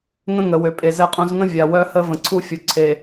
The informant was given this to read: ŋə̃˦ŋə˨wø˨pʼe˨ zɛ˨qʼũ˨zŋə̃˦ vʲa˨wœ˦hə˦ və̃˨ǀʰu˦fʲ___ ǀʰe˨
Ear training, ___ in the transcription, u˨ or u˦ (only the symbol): u˨